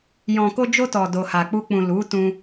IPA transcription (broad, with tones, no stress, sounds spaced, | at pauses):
j ɔ̃˨ k o˧ d͡ʒ o˧ t ɔ˨ d o˨ h a˨ k͡p u˧ k͡p ũ˨ l u˨˦ t ũ˧